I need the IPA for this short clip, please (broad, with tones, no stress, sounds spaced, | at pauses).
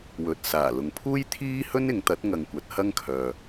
w ɵ˨ t̚ s aː˨˩ l ʊ˨ ŋ pʰ uː˥ j t̪ʰ iː˥ h ɵ˥ n ɪ˨˧ ŋ t̪ ɐ˨˥ t̚ ŋ ɐ˨ ŋ kʷ ɐ˨˥ t̚ h ɐ˥ ŋ kʰ œː˨